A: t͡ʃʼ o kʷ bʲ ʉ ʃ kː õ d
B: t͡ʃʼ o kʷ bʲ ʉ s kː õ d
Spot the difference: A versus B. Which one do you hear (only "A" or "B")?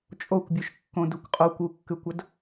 A